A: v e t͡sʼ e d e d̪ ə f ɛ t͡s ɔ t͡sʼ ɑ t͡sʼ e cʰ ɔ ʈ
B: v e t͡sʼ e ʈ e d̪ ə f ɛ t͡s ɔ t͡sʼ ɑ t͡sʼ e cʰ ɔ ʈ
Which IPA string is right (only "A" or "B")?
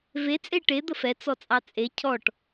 B